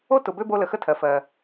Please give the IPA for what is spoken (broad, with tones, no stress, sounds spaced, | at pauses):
o˥ t ʊ˨ b ø˦ b o˦ l ə˨ x ə˥ tʰ ɜ˩ f ɜ˩